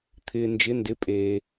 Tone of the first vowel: low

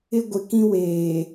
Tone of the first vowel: high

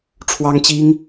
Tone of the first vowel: high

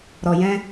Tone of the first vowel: low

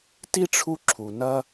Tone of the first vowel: high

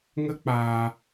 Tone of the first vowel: high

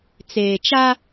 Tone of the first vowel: low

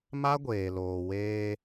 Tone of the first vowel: high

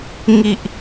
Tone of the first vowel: low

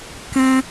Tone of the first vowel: high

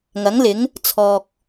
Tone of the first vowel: rising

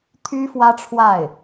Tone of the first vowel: high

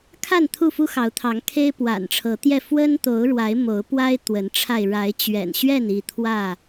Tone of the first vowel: falling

